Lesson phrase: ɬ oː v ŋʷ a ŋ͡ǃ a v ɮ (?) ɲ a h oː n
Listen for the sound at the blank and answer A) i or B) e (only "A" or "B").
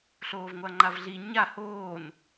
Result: A